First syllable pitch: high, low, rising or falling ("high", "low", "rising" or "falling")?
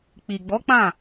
low